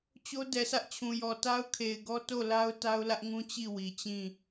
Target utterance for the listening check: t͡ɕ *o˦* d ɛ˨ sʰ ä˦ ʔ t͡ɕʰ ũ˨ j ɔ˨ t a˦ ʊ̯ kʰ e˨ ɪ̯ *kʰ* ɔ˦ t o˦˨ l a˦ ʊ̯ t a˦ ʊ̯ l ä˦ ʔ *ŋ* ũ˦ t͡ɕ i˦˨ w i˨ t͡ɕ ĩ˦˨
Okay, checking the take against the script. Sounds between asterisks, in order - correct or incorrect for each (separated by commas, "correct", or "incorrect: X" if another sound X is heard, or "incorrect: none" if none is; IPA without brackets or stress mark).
correct, incorrect: ɡ, correct